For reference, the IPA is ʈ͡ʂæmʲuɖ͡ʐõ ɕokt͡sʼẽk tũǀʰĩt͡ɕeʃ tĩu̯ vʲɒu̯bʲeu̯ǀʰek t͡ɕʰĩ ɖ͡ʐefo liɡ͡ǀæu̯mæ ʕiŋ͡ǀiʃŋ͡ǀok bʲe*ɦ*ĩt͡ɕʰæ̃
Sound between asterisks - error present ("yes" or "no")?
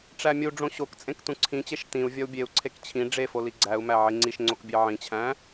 yes